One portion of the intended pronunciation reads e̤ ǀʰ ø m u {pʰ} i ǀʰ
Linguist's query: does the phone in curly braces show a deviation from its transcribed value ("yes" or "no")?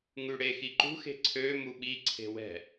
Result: yes